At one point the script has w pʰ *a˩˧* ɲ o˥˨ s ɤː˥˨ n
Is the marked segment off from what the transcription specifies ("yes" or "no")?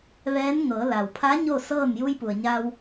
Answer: yes